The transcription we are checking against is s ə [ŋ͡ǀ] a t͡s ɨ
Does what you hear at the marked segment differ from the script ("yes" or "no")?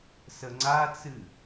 no